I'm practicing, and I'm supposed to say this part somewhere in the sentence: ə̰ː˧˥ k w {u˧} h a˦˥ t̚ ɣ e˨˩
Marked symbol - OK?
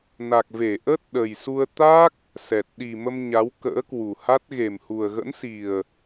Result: no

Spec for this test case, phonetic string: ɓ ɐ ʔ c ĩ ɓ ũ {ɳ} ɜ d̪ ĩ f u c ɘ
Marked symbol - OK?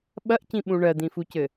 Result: yes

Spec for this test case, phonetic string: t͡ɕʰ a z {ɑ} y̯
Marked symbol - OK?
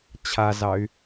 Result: yes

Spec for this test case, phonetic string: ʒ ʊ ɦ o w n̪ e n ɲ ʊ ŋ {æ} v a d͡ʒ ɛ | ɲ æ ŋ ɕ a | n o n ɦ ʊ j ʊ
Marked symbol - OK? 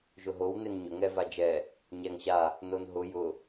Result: no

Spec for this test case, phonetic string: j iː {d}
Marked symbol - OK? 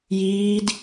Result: yes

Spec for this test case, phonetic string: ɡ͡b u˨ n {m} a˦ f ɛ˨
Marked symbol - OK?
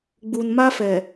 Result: yes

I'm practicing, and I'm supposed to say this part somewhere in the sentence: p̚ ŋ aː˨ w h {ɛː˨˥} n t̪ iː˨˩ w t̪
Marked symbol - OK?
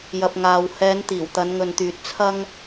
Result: no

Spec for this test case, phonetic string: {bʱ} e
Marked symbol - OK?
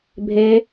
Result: yes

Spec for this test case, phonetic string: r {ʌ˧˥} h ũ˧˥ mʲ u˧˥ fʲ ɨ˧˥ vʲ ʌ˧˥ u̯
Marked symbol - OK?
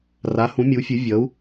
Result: no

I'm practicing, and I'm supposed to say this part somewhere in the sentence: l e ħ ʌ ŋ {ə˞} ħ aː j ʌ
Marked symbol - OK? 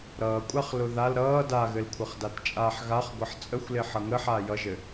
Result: no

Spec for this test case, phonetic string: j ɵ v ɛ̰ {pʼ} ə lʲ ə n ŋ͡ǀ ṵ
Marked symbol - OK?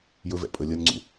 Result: yes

